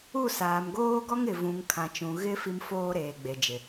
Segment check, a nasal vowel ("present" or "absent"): present